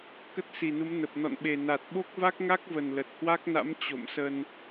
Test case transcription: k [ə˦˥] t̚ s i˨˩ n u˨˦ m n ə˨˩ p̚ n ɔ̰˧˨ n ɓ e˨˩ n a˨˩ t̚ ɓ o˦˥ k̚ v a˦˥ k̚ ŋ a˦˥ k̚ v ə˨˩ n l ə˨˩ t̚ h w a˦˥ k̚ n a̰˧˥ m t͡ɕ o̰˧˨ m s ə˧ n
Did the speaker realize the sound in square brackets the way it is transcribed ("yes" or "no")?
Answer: yes